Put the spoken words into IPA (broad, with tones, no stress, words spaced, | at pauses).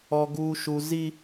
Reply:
ɔ˦ɡuː˦ʃu˦ zi˦